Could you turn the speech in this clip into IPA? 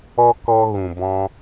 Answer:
ɔ˦ kɔ˧ ɣũ˨bɔ̃˧

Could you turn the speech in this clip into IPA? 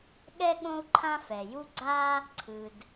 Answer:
ɠɛ˥ ɠõ˥u̯ǃʰã˥fɛ˩ju˥ ɡ͡ǀa˥ | ǀʰɯ˩d

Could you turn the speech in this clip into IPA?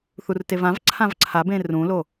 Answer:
θurtevãvǀʰãv ǀʰabẽ rũlo

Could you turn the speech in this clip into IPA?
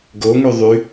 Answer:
ɡoŋy ðˤy

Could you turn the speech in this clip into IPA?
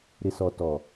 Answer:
ɾɪ˨sɔ˨tɔ˨

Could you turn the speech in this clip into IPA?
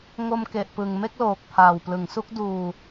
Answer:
ŋo˧mke˨˩ʔpɯ˨˩ŋ me˥˩k̚loː˨˩k̚pʰaː˨˩wplɯ˩˦ŋ su˦˥k̚duː˧

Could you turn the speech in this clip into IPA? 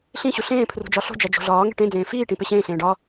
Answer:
ɬĩɕu ɬẽːpʰrṳ d͡ʒɒɬo̤d͡ʒæ d͡ʒo̤ɮɒːŋe̤ ʈẽd͡zẽː fiːʈĩ peɕẽːɬẽː ɖɒ

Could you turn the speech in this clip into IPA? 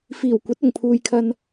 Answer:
fiː˨˩w kʷɐ˨˥t̚ʊ˨˩ŋpʰuː˨jkʰɐ˧n

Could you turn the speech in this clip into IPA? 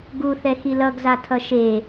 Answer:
ɡuθɛ xilʌɡ zatʰʌʃe

